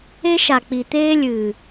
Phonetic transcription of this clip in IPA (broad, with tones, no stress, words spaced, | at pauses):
e˦ʃa˨k͡pi˨ t̪eː˦lʲɨː˨